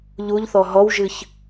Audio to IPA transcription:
ʎ u ʎ θ ɔ ɦ ɔ w ʒ ɨ ç

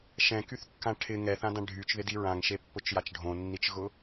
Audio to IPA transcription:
ʃ ɛ̃ k y θ kː ã ʈʰ ɪ ŋ ɛ θ ã d ã ɖʱ y t͡ʃ ð ɪ d i ɹ ã ŋ ʃ e pː ʊ t͡ʃ j a t͡ʃ ɖʱ õ nː i t͡ʃ ɣ ʊ

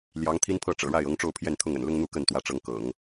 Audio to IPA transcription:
l j ɑ˧˥ ŋ t̪ʰ i˥ n pʰ ɤ˥˩ ʈ͡ʂ ɤ̰˨˩ ɻ a˥˩ ɪ̯ ɤ˧˥ ŋ ʈ͡ʂ o˥˧ ʊ̯ pʰ j ɛ˥˧ n t̪ʰ ʊ˥˩ ŋ ə̰˨˩ n l ʊ˥ ŋ n̪ u˥˧ k ə˥˩ n t̪ w ä˧˥ ʈ͡ʂ ɤ˧˥ ŋ k ɤ̰˨˩˦ ŋ

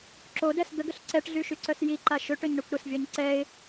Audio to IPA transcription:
ǁ o d ɛ s d̪ ə ɡ ə ɬ ǀ ɛ ʈ ɮ y ʃ y ǀ œ s j i ǃ a ʃ ø ʈ ø ɲ ɳ ø kʷ ɾ ə s vʲ ɔ ɲ ǀ ɛ ɪ̯

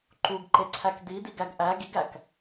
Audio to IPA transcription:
ǃ u ɡ ǃ e ǀʰ æ k d̪ i d̪ i ɡ æ ɡ ʔ æ ɡ i ɡ æ k

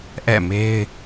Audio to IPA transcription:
ʔ ɛ̰˦˨ m e˦ ɪ̯

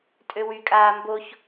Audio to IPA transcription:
tʼ ø w y kʼ aː m b o ç

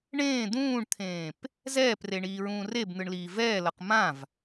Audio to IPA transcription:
ɳ ẽː d̪ ũː ɳ t̪ʰ ẽː p | z ɛː p r e ɳ iː ɹ ũː r e b n̪ ɯ ɳ l iː v ɛː l ʌ q m ã v

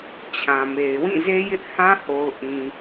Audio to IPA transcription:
t͡ɕʰ ã˨ m e˨ ɪ̯ w ĩ˦˨ z e˦ j ɪ˦ ʔ h ã˦ h o˨ ʊ̯ ʔ ĩ˨

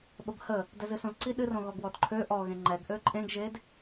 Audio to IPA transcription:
ɓ ə b h ə | d ɛ z ɨ s õ z ǀ i ɗ ɨ r õ ɣ ɔ ɡ w ɔ d ǃʰ ø ʔ ɔ ɣ ẽ ŋ͡ǃ ɛ ɡ ʔ ø ǃʼ ẽ ɡ ʒ e d

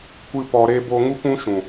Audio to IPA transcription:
kʷ ɨ˦ p ɔ˧ ɾ e˦ b oː˧ ŋ u˦ kʷ ũ˦ ʃ ũ˨

